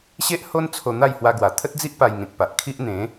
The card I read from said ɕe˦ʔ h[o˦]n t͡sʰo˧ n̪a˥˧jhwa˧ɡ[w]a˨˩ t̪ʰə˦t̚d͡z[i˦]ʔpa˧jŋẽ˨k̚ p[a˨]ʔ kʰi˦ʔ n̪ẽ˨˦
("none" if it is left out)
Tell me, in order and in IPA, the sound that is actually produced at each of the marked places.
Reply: o˦, w, i˦, a˨

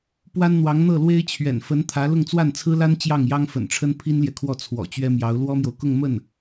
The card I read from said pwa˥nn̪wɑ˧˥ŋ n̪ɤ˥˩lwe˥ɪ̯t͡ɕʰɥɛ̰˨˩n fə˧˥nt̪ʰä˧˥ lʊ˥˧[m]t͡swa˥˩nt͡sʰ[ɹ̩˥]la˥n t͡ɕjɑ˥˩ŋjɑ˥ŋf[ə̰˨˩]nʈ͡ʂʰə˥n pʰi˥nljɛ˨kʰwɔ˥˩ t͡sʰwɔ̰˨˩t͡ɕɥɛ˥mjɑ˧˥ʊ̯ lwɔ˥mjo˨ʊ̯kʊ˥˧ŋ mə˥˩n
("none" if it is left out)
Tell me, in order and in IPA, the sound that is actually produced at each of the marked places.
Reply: ŋ, ɹ̩˥, ə̰˨˩

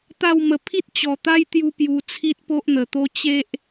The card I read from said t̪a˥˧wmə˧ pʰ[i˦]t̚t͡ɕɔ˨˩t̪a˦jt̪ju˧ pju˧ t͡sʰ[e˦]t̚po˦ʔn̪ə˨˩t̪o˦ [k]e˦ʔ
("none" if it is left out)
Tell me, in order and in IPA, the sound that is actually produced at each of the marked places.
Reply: i˦, i˦, t͡ɕ

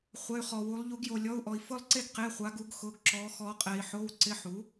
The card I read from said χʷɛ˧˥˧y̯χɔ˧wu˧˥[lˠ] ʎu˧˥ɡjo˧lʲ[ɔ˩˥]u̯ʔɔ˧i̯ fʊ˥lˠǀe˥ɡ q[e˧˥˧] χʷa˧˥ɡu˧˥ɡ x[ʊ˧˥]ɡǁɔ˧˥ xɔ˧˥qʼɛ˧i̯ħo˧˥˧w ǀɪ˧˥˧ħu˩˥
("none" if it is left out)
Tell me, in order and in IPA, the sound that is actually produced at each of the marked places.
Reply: lˠ, ɔ˧˥˧, e˧˥˧, ʊ˧˥

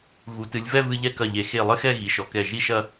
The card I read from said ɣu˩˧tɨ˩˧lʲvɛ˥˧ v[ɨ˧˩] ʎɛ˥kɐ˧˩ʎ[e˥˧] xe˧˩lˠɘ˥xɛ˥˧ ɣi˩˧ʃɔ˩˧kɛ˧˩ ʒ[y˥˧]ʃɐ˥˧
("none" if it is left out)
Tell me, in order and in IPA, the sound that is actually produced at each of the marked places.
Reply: ɨ˧, e˩˧, i˥˧

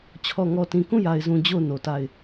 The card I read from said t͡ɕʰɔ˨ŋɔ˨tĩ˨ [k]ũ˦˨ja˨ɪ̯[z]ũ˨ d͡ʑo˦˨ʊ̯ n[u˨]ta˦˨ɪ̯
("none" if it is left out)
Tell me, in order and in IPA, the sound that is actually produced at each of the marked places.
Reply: k, z, o˨

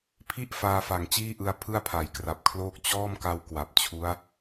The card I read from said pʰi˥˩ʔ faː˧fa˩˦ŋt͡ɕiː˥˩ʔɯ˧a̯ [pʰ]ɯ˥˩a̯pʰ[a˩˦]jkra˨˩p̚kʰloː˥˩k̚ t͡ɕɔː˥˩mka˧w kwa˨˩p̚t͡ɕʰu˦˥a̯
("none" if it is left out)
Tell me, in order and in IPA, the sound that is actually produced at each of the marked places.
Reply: pʰ, a˩˦

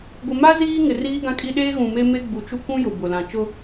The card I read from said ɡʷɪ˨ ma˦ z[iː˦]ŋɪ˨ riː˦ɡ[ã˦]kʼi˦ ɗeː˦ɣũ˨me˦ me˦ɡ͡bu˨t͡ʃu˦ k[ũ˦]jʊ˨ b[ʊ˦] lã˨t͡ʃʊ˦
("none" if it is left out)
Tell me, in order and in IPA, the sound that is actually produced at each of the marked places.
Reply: iː˦, ã˦, ũ˦, ʊ˨

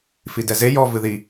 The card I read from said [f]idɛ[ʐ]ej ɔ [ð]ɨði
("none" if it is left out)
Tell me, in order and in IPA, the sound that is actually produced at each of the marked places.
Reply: f, z, v

